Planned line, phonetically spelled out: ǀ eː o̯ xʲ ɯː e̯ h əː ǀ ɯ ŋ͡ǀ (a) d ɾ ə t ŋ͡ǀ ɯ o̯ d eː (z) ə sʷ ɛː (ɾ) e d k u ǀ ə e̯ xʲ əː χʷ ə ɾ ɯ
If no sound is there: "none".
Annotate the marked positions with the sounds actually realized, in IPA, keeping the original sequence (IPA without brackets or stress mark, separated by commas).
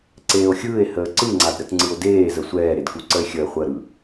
a, z, ɾ